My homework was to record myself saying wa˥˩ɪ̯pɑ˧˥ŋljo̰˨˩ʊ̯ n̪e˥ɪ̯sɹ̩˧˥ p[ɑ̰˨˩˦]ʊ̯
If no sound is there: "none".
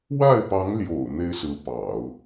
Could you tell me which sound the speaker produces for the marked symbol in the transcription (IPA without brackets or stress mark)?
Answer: ɑ̰˨˩˦